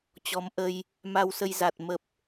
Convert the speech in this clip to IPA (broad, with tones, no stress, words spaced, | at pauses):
t͡ɕɔ˨˦mʔə˧j | ma˧wsə˧j za˨˩t̚ mə˨˩p̚